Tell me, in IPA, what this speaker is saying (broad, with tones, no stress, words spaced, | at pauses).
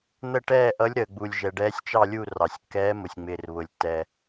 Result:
n̪ə˦˨ʈɛː˦˨ ʔʌ˨˦lʲɾəː˩ɡ͡bu˩lʲ ʒɛ˩ɖɛː˨˦sʲt͡ʃɑ˦˨lʲu˦˨ rɑ˩sʲkːɛː˨˦mʊ˩sʲ ŋ͡mɪː˩rβʊ˩lʲtːɛ˩